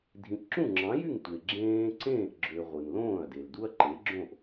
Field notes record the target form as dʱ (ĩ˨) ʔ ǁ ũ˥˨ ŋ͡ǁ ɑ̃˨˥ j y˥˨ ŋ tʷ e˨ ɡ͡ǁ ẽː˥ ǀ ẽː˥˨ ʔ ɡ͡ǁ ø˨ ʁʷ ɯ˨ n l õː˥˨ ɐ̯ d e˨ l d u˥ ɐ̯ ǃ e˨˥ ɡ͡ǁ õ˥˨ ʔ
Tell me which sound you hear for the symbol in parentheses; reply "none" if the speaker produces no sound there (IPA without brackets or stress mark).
ĩ˨